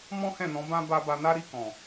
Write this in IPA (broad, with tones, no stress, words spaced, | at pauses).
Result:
mɔ̃˦hɛ̃˦˨nɔ̃˨˦bã˦ ba˧ba˧na˦ ɾi˦˨kɔ̃˨